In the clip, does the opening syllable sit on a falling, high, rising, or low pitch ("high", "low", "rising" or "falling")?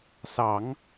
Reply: low